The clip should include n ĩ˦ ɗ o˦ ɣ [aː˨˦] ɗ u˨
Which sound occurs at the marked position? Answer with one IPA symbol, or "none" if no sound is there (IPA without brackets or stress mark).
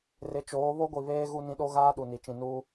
aː˦